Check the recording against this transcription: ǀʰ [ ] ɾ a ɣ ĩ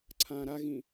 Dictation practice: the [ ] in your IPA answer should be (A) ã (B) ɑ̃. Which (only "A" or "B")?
A